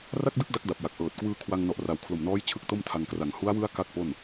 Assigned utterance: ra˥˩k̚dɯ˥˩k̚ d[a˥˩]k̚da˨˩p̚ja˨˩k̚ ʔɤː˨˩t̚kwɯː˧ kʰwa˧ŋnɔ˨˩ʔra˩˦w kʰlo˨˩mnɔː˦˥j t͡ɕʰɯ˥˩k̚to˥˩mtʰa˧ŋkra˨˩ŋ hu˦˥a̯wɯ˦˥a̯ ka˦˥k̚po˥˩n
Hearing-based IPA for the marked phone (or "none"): a˦˥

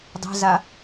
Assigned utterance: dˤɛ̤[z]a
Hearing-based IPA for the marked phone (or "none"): z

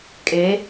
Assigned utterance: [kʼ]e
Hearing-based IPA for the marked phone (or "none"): kʼ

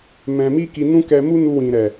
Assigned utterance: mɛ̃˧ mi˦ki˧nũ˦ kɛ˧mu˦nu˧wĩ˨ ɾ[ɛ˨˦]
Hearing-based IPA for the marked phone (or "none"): ɛ˨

